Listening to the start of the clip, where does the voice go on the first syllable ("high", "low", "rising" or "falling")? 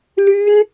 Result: high